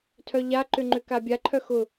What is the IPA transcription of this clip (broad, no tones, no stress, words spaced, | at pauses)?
tʰœʎaǃʏ ŋ͡ǃʏkabʲaǃʰœ xʊ